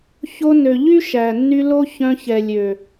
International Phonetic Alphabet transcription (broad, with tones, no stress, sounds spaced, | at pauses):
ç o˧ n ø˨ ʎ y˦ ʃ æ˨ nː y˧ l o˦ ç œ̃˧ ç ɛ˨ lʲ ø˨